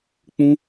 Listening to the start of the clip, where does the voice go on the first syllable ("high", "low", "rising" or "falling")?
high